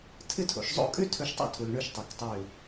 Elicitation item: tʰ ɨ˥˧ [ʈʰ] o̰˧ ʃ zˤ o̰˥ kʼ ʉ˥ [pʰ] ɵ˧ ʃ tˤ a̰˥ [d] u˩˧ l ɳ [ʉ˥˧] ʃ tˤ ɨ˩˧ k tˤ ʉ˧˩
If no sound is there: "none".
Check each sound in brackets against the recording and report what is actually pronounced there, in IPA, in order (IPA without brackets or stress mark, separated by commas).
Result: tʰ, tʰ, tʰ, ʉ˧